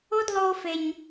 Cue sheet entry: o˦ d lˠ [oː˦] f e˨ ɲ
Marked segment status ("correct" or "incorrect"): correct